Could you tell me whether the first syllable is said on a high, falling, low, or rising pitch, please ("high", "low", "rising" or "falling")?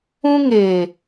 high